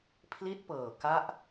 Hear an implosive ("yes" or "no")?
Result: no